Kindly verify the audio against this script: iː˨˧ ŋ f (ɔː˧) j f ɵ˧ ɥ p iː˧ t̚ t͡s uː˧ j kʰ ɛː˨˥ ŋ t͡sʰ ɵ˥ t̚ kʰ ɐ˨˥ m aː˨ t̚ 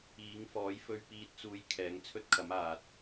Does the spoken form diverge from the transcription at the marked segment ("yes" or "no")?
yes